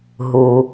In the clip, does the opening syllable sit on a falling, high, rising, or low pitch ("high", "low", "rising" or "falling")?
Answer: low